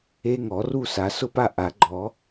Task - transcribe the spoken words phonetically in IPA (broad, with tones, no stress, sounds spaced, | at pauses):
e˦˥ ŋ ɔ˨˩˦ r u˥˧ s a˨˩˦ s ʊ˥˧ p a˥˧ ʔ a˨˩˦ ɡ͡ǃ ɔ˨˩˦